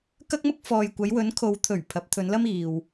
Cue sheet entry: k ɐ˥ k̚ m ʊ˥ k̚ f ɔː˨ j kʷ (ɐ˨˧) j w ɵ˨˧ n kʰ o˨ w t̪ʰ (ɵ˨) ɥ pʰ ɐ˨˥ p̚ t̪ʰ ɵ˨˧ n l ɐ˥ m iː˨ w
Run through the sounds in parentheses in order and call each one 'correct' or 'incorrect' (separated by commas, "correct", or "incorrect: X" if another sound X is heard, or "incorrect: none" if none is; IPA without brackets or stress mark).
correct, incorrect: ɵ˨˩